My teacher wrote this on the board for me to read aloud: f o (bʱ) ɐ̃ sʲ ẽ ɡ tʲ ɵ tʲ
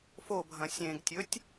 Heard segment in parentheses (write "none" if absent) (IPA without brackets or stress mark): bʱ